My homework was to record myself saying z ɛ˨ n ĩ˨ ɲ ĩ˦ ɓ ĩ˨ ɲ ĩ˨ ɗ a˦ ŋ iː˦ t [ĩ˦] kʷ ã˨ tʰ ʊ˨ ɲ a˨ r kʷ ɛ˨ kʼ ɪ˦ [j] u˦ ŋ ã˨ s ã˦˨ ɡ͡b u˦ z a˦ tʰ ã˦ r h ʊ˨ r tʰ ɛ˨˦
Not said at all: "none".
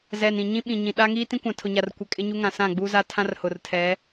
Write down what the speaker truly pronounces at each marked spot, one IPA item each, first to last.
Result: ĩ˦, ɲ

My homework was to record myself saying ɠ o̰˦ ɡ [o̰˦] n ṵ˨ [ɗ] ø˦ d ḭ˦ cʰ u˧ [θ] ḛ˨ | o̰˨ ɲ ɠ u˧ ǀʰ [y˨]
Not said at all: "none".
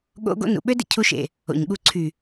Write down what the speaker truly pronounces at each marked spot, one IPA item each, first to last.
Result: o̰˦, ɓ, ʃ, y˨

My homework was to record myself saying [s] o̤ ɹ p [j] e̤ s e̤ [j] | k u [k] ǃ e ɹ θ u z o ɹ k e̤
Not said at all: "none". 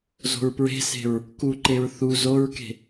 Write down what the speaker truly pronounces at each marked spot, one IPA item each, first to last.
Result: z, ɹ, ɹ, none

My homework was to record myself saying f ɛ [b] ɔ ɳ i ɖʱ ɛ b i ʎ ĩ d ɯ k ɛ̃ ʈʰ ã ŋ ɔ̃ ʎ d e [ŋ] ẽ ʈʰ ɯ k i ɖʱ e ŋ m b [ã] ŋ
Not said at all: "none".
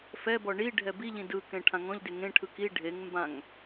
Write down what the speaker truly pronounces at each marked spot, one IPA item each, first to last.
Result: b, ŋ, ã

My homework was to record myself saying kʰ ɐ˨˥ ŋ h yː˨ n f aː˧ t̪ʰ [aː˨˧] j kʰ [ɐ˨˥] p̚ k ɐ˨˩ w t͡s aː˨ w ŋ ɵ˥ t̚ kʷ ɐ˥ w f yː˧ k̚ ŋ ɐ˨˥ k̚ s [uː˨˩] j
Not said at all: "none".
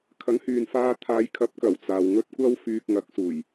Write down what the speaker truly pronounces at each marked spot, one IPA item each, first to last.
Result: aː˨˧, ɐ˨˥, uː˨˩

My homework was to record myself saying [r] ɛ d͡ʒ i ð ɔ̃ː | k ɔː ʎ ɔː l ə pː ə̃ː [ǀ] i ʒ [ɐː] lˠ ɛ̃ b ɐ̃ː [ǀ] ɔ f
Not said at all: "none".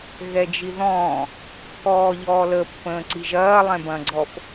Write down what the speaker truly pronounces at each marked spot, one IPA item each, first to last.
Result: ɣ, ǀ, ɐː, ɡ͡ǀ

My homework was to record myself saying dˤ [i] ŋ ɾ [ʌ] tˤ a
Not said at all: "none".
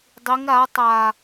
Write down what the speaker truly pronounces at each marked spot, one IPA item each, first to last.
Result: i, a

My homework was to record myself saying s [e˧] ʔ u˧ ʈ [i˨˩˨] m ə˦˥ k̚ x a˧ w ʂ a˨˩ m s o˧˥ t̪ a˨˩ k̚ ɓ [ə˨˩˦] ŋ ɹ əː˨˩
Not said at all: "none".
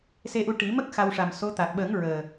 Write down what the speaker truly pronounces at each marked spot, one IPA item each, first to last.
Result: e˧, i˨˩˦, ə˨˩˦

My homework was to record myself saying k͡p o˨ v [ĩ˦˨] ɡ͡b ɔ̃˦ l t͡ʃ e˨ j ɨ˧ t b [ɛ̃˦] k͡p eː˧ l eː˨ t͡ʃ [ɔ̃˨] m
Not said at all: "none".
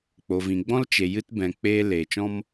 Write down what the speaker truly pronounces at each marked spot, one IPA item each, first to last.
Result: ĩ˨, ɛ̃˨, ɔ̃˦

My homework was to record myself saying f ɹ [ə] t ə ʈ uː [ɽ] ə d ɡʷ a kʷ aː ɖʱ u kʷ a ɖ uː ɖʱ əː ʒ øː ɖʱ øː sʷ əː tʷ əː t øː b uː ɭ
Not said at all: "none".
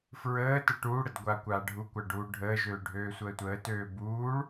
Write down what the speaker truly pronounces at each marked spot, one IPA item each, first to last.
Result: əː, ɽ

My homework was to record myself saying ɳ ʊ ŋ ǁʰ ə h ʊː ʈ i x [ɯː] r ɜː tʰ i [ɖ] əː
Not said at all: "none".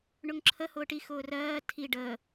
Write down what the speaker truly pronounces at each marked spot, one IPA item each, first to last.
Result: ʊː, ɖ

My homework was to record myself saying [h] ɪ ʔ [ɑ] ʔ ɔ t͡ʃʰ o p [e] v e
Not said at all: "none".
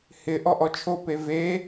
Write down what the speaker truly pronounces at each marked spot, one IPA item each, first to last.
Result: h, ɔ, e

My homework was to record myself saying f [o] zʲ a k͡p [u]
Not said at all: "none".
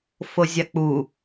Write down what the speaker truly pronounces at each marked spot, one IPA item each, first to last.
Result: o, u

